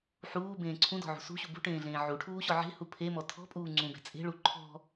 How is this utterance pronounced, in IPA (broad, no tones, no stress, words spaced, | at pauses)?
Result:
ħuːbẽː ǀʰũdɔ̤ʕṳ sṳɕu bṳʈẽːɮẽː ʕuʈʰuːɕɔ ʕe̤hu pʰemɔ tʰɔ̤pʼuː ŋ͡ǀũbe̤ t͡sʼe̤ɭu ǃʰɔ̤